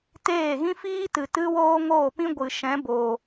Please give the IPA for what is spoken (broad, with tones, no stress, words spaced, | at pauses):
teː˦˨ɣĩ˦fiː˦ tɨ˨tɨ˦woː˦ ŋoː˦˨pĩ˦ɡʷɨ˨ʃɛ̃˨˦ boː˨